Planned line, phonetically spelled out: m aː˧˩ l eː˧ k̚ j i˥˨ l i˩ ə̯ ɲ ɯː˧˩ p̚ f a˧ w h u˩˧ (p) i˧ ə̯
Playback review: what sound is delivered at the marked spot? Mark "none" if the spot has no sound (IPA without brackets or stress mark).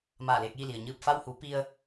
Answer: p